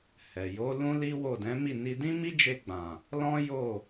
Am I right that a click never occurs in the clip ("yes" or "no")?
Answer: yes